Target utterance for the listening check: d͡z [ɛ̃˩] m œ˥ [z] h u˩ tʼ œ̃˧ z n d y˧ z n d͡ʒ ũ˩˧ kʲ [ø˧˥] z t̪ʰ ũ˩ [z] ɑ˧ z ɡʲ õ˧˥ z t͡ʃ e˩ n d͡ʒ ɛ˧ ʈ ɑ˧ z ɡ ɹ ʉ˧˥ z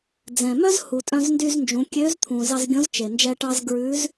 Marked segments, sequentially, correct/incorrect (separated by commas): correct, correct, correct, correct